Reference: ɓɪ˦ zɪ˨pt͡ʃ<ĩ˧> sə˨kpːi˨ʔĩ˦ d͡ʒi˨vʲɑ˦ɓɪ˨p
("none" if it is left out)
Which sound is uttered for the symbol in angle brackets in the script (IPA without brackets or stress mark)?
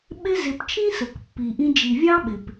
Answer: ĩ˦